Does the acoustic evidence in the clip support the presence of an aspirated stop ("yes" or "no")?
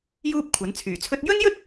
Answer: yes